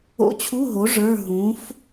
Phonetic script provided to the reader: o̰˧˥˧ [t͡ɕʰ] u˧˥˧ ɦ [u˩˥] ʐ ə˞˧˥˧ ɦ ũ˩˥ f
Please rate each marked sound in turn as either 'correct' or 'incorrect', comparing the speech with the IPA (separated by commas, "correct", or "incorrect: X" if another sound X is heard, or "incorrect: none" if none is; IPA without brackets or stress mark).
correct, incorrect: o˩˥